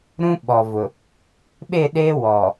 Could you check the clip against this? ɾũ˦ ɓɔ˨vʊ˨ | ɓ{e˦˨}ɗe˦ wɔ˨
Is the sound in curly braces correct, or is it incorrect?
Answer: correct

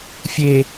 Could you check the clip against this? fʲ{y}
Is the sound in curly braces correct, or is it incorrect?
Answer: incorrect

